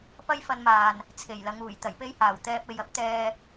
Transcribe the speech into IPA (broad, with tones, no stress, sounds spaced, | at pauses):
p ɐ˥ j f ɐ˧ n m aː˨ n | t͡sʰ e˨˩ j l ɐ˨˧ ŋ uː˨˩ j t̪ ɐ˨˩ j p e˥ j h aː˨˩ w t̪ ɛː˧ p̚ e˨ j ɐ˥ p̚ t̪ ɛː˧